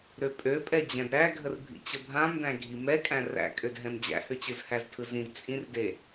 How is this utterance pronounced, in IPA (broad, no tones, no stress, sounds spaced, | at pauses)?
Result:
ɾ ø pʼ ø pʼ ɛ d͡ʑ æ̃ d ɾ æ ɡʱ ə r bʱ ḭ t͡ɕ ə bʱ ã m d æ̃ ɡʱ i m ɛ kʼ æ̃ r æ̰ kʼ ø d ɦ ɛ̃ m d͡ʑ æ̰ h ø t͡ɕ ɯ z h æ z tʰ ɯ z ĩ z t͡sʼ ĩ r d e